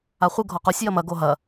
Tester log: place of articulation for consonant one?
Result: uvular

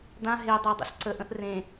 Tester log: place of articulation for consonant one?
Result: alveolar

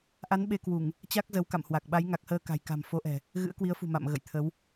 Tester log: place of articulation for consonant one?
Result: glottal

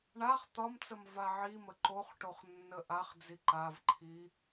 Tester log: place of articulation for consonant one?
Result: retroflex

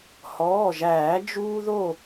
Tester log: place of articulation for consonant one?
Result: glottal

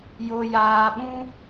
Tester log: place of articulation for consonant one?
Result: palatal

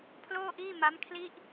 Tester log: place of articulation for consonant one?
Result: labial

